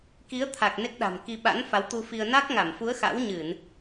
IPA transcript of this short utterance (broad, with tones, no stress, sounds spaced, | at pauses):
k i˨˦ ə̯ t̪ʰ a˨˩ k̚ n e˦˥ k̚ ɗ a̤˨˩ m k i˧ ɓ a̰˧˥ n f a˨˦ w t̪ u˧ f i˧ ə̯ n a˦˥ k̚ ŋ a˧˩ m f u˨˦ ə̯ x a̰˧˥ w ɲ ɨ˧˩˨ n